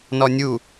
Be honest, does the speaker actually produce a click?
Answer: no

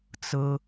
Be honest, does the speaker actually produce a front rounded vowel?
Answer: no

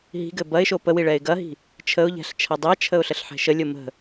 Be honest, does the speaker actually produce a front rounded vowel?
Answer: no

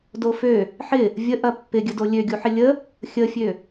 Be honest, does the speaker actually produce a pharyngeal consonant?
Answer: yes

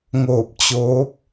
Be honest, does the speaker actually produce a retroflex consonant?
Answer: no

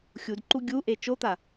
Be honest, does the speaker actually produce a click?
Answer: yes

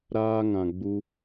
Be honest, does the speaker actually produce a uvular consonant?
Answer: no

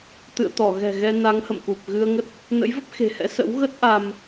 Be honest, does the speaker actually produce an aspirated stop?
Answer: no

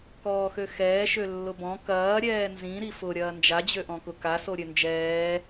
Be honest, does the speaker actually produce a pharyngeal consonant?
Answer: no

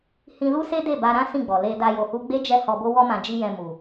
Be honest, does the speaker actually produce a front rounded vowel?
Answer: no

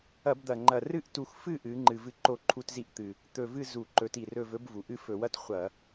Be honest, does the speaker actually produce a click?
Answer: yes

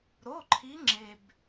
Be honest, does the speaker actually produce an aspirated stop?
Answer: yes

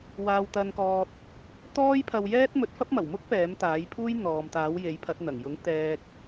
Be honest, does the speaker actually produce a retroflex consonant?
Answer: no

